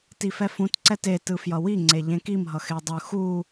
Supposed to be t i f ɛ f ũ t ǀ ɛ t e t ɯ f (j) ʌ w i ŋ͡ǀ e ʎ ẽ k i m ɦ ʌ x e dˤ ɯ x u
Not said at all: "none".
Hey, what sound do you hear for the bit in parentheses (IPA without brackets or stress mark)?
j